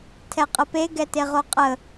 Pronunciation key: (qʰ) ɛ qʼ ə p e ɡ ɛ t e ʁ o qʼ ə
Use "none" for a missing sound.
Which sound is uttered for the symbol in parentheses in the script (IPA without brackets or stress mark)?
tʰ